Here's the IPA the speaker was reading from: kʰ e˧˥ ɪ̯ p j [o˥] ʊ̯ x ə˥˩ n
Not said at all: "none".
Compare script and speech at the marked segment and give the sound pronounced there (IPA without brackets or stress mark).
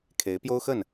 o˥